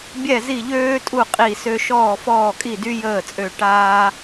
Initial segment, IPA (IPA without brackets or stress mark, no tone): bʲ